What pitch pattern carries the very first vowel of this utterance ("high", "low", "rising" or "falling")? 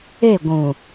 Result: falling